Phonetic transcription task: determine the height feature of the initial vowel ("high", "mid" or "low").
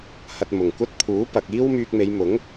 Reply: low